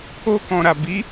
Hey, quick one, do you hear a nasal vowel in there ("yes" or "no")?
yes